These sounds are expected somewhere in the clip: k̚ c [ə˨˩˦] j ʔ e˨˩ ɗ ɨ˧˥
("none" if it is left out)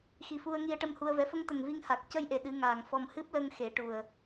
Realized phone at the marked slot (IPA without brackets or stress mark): ə˧